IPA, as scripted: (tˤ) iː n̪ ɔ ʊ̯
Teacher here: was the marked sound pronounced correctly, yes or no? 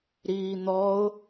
no